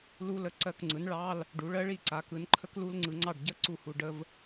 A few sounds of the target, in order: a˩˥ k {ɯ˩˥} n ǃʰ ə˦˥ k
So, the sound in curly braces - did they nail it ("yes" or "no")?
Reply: yes